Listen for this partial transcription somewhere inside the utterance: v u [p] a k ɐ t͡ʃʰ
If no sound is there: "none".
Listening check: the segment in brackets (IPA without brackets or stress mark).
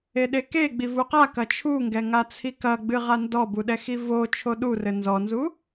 q